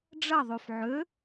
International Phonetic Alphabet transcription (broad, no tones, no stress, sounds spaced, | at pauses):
ɖ͡ʐ ɐ ðˤ y f ʕ ø